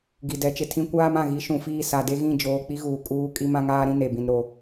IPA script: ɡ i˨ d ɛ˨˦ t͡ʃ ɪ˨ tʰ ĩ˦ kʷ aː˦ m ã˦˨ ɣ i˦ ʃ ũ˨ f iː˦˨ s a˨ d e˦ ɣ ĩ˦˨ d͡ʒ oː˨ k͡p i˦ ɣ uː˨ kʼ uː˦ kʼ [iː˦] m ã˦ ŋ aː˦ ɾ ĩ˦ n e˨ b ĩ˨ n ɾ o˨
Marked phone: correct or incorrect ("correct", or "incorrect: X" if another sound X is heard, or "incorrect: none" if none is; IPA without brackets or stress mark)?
incorrect: i˦